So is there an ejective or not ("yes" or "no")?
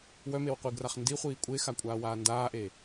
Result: yes